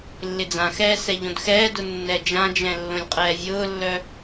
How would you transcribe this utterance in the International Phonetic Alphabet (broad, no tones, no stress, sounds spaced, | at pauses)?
lː ɪ d͡z ã x ɛː s ɛ ʎ õ d x ɛː d ʊ nː ɛ d͡ʒ ã d͡ʒ ɛ̃ lː õ lʲ qʼ ɛː vʲ ʊː lː œ